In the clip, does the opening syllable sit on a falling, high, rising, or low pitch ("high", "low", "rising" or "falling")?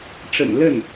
low